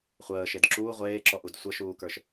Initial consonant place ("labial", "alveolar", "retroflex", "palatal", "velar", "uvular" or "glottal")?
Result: uvular